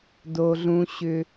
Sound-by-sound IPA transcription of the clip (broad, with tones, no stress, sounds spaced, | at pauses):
d o˨ ɮ ũ˨ ɕ ʏ˨